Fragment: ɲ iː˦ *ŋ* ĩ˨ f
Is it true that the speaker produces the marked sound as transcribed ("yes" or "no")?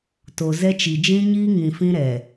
yes